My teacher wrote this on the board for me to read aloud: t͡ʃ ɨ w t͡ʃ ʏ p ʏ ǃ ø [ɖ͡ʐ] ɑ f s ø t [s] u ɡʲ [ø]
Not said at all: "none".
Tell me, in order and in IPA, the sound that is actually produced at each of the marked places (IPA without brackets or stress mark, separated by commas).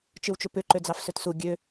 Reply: d͡z, s, ø